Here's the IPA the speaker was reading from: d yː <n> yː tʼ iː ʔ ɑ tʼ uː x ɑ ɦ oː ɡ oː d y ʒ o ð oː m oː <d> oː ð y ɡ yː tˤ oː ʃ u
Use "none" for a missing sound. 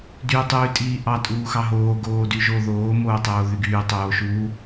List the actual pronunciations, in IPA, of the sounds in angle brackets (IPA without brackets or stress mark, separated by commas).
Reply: tˤ, tˤ